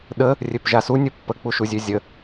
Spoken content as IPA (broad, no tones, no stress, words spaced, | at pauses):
ɗə | rʲøpʒasu nʲɵpːə k͡puʃuzʲøzʲə